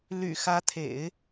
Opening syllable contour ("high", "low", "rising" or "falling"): low